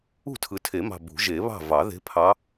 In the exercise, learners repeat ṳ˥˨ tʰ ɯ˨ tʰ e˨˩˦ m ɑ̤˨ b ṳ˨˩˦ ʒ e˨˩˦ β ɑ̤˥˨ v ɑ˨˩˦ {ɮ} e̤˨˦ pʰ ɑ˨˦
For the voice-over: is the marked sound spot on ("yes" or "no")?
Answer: no